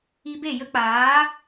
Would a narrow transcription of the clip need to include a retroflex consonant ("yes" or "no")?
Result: no